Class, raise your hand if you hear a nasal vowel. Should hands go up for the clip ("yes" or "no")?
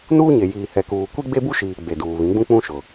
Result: yes